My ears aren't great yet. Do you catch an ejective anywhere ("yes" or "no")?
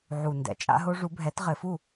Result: yes